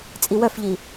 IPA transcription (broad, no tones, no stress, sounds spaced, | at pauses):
t͡sʼ i w œ f ʎ i